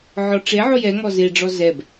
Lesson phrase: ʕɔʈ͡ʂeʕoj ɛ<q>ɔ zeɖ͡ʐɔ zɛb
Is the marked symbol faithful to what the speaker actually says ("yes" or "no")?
no